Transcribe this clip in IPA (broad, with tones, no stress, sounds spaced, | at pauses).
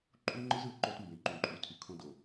ǃʼ u˦ ŋ͡ǃ ɯ˦ z ɯ˨ ə̯ ǃ o˦ t m b ẽ˨ ǃ ũ˨ ǃʼ u˨˦ tʰ y˨ kʰ õ˦ d o˨